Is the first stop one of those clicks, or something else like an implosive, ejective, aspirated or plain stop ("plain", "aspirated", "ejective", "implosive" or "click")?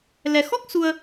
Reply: plain